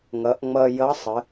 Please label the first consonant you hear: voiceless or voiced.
voiced